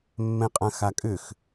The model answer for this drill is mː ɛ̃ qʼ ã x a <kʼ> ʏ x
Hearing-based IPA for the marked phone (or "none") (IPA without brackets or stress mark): kʼ